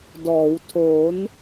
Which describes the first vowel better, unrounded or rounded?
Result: rounded